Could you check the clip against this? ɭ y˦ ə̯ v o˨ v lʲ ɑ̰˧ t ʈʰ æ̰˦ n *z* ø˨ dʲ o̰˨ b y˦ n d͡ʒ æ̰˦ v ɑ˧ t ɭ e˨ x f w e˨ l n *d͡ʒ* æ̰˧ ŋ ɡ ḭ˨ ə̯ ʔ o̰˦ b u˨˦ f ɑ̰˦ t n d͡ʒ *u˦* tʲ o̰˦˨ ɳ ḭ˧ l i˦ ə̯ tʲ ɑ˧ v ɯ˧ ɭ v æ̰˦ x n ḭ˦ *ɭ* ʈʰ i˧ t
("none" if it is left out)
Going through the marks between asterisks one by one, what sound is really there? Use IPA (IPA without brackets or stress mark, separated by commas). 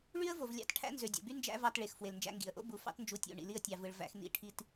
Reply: z, d͡ʒ, u˧, none